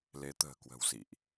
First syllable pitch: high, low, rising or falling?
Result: rising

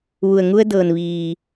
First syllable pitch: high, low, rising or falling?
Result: low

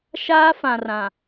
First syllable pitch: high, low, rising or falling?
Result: high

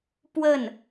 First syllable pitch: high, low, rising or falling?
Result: falling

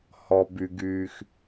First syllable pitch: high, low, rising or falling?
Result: low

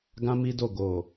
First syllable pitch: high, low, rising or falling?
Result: high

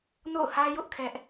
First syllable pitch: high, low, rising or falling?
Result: falling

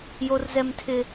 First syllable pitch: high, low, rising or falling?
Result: high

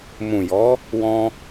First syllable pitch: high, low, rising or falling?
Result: low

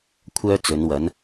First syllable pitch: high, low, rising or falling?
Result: high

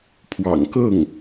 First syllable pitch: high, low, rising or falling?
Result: low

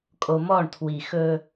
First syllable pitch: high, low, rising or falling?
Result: low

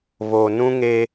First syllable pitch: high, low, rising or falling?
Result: low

